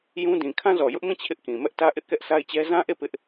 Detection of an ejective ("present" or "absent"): absent